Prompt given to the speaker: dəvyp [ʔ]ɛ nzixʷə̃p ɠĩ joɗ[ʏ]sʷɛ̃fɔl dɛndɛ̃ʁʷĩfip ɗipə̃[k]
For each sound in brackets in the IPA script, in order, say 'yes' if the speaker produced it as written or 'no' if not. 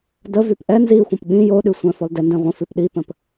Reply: yes, no, no

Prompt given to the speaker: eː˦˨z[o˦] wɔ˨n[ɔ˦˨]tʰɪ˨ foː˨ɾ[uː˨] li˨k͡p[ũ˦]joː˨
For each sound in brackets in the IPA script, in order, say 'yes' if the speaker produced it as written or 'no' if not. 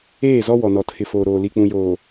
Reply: no, no, no, no

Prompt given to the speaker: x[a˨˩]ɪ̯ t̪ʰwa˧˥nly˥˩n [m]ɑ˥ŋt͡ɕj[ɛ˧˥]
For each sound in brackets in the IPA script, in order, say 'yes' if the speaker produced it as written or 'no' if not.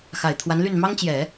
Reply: yes, yes, no

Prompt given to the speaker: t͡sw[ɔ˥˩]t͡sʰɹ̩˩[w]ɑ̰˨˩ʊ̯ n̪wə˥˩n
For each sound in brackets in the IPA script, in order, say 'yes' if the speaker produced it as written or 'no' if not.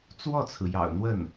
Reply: yes, no

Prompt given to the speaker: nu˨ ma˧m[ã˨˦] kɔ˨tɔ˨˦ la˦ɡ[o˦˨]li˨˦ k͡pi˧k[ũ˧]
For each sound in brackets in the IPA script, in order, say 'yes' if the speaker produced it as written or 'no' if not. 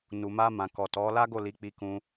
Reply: no, yes, yes

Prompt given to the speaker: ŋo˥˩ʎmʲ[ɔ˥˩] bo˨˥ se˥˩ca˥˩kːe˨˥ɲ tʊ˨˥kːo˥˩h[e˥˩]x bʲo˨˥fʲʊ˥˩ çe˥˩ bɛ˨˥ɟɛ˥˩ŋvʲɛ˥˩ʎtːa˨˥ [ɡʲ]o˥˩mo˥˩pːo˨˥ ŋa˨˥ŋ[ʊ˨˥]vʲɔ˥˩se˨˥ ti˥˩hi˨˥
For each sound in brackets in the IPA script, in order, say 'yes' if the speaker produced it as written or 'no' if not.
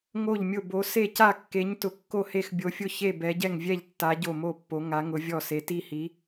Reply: no, yes, no, yes

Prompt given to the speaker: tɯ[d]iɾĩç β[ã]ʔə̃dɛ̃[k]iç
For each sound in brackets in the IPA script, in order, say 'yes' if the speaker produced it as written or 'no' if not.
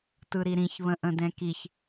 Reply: no, no, yes

